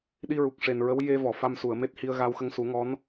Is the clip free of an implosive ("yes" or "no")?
no